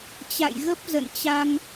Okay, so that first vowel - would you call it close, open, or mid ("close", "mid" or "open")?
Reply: open